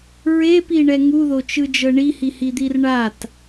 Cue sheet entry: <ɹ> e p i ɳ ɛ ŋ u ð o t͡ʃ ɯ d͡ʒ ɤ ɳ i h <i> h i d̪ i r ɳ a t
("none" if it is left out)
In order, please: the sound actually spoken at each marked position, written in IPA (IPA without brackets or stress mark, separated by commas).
ɹ, i